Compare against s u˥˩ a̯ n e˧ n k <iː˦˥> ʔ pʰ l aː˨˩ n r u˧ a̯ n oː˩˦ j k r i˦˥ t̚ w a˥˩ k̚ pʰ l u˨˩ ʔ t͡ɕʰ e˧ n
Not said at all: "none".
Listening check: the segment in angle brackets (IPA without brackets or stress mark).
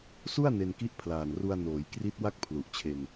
i˦˥